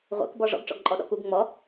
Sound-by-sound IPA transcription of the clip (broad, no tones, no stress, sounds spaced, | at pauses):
ʁʷ ḛ k b ɔ ʐ ɔ̰ ɡ ʈ͡ʂ ɔ̰ ɡ ǃʼ ɔ ɗ ɔ̰ k u ɡ ŋ͡m ɔ